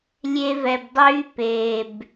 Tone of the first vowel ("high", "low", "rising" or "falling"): high